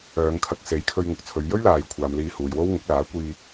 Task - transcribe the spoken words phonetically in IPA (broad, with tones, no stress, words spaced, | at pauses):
œː˨˧ŋkʰɐ˧k̚se˨˥jkʰɵ˧ɥ ŋʊ˨k̚t͡sʰɵ˨˧ɥ jɵ˥ɥlaː˨jkʷʰaː˨m liː˧huː˨jwo˥wŋʊ˨˥k̚ laː˨˥kʷiː˧